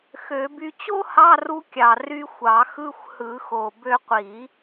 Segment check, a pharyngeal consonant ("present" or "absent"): absent